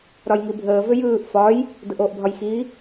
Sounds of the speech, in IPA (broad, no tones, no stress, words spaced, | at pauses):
ɾɒjŋibʱəː vʏjɯːʔ fɒj | dɯʔoːʔbʱɒjxi